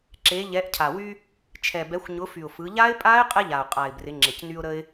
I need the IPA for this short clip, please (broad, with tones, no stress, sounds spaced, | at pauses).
ǁ e˩˧ ʎ ɛ˩˧ ʔ cʰ a˩ w y˧ | t͡ʃʰ ɛ˩ b ɛ˩˧ xʷ ɲ ʊ˩˧ f y˩ ʊ̯ f ɯ˩˧ ʎ a˦˥ ɪ̯ pʼ a˦˥ ɪ̯ qʼ ɛ˧ ʎ a˩ ʊ̯ qʼ a˩ ɪ̯ b r ɪ˩˧ ŋ͡ǁ e˩ c n y˧ ʊ̯ ɾ ə˧ ɪ̯